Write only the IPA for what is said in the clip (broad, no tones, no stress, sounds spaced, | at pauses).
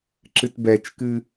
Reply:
ǁ ɨ t b ɛ t͡ʃ k ɨ